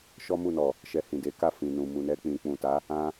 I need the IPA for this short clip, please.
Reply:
ʃɔ˦mu˦˨nɔ˨ | ʃɛ˧hĩ˨de˨˦ka˦˨ fĩ˨nũ˨ mu˨nɛ˧ k͡pĩ˨k͡pũ˨ta˨˦ | ã˦

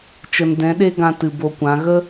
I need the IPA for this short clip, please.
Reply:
t͡ʃə˨ndɛ̃˨˦ɗe˦ɡã˧ tɨ˨bo˧kʷã˨˦ ɣə˦

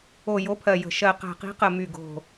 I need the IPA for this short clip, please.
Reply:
o˨˩ jo˨˦pʰɜ˨˩jə̤˨˩ ʃɜ˨˩qæ̤˨˩qi̤˨˦qə˨˩ my˨˩ɡo̤˨˩

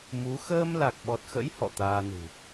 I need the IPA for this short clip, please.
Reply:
mu˨˦ xəː˧m la˨˩k̚ɓɔ˨˩t̚xə̰˧˥j hɔ̰˧˨t̪aː˧nṳ˨˩

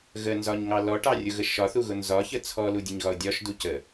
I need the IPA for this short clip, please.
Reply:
ɣənzɒɲŋɑ lɔʈɑrʲʊɣə ʃɒθuɣʊ nzɒçə t͡sʰɔludʲəɲɣɒʊ̯ dʲɒʃdu cə

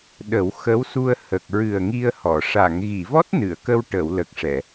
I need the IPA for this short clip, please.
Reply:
ɗə˨˩˦wxə˧˥wsu˧ə̯hə˨˩k̚ ɹɨ˨˩ə̯ŋi˧ə̯ hɔ˨˩˨ ʂa˨˩˨ŋɣi˨˩˨vɔ˦˥t̚ nɨ˨˩˨ə̯kə˧w ʈə˨˩˨wlə˨˩k̚ ʂɛ˨˩˨

